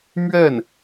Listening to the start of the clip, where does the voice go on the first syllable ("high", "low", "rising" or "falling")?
falling